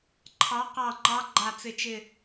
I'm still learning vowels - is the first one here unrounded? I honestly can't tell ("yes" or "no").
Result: yes